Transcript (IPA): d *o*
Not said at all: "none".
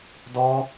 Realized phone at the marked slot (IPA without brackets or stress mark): ɔ